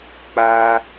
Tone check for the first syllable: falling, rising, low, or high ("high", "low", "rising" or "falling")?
high